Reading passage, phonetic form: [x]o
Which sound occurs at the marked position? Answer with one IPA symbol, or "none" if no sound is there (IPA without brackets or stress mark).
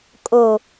kʼ